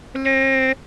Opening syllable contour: high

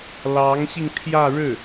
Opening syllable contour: rising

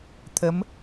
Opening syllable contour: rising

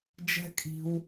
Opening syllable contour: high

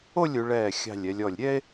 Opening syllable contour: falling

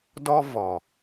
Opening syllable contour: high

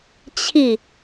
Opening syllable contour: falling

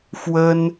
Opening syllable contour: high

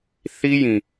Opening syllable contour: high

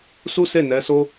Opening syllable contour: high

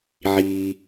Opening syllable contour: low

